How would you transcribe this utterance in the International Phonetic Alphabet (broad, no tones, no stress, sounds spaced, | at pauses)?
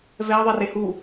v ɛ ðˤ ɛ r e h u